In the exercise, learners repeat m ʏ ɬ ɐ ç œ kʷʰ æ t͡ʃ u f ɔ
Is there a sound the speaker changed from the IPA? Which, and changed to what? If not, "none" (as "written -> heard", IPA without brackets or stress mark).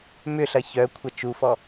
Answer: æ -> ɐ